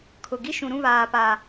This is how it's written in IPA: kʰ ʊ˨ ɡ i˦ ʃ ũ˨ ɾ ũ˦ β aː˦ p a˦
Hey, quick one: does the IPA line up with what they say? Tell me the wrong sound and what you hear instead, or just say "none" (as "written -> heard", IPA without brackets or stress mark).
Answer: none